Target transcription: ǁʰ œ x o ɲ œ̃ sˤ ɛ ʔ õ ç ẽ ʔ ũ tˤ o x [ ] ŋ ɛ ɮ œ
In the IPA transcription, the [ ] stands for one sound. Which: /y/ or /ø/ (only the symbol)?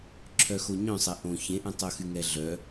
y